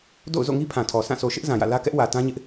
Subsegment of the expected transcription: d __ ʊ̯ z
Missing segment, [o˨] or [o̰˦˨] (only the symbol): o̰˦˨